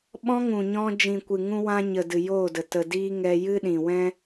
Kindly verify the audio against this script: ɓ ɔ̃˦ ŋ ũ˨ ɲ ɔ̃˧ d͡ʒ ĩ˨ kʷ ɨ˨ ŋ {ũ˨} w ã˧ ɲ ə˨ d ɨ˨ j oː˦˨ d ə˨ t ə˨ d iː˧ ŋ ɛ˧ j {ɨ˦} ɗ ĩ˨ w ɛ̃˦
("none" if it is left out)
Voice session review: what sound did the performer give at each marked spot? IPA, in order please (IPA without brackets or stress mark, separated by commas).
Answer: ũ˧, ɨ˦